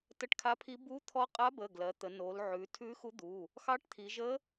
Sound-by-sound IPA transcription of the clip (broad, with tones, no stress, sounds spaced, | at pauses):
t ə˧˥ ʈ kʰ a˧˥ pʰ i˧˥ b u˧˥ t̪ʰ ɔ˧˥ qʼ a˧˥ b ə˩˧˩ ɡ l ɜ˩˧ t̪ ə˩˧ n o˩˧ l ʕ ʉ˩˧ tʰ ʉ˧˥ x u˧˥ d̪ u˩˧˩ | x ɑ˧˥ ʈ t̪ʰ i˩˧ ʒ ə˧˥